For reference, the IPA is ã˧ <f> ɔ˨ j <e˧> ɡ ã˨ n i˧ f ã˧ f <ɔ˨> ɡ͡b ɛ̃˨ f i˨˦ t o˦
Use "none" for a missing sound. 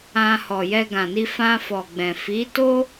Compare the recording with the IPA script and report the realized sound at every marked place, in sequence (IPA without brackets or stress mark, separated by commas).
h, ɛ˧, ɔ˨